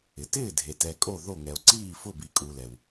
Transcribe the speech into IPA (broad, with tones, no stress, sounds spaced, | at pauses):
ɪ˨ t ɪː˥˩ dʱ e˨ t ɛ˨ kʼ o˥˩ ð o˥˩ ŋ ɛ˨ o̯ ǀ iː˥˩ f ʊ˥˩ b i˨ kʼ u˨ l ɛ˨ w